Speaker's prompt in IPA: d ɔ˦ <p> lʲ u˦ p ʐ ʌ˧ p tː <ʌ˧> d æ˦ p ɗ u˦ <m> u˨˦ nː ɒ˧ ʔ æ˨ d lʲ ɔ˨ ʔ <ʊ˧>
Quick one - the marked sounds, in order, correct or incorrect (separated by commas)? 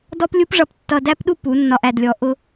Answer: correct, correct, incorrect, correct